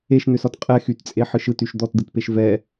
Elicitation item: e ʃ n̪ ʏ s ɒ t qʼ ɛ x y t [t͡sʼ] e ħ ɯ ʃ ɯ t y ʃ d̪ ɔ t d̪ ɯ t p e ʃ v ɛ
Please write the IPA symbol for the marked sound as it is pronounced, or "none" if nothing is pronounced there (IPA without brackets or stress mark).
t͡sʼ